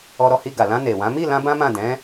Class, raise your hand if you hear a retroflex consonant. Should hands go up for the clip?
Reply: no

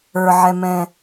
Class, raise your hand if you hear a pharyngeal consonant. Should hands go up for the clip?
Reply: yes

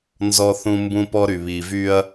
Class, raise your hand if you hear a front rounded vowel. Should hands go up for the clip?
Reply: yes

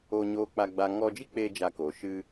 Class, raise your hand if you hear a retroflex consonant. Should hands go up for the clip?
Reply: no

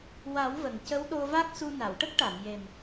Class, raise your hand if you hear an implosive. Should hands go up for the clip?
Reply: yes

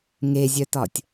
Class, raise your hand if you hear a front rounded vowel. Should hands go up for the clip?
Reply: yes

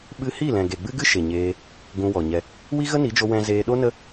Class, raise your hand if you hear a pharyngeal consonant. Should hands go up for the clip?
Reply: no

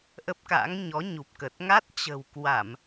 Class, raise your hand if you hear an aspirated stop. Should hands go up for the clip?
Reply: no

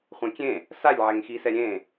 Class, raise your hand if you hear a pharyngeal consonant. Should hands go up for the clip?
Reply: yes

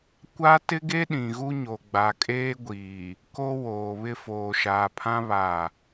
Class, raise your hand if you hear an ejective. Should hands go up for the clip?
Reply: yes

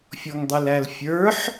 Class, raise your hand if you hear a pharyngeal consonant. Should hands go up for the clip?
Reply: yes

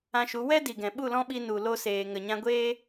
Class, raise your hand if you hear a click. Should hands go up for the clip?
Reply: no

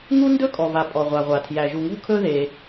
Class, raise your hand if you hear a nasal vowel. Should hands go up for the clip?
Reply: no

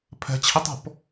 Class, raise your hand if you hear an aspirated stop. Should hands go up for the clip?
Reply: yes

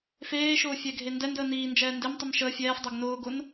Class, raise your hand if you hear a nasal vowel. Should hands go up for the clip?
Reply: no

